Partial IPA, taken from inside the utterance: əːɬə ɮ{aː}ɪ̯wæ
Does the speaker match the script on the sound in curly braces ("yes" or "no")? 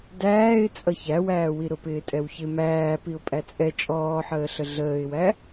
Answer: no